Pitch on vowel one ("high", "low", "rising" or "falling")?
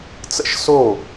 falling